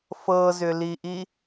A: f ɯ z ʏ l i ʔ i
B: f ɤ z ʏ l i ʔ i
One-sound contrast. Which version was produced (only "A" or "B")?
B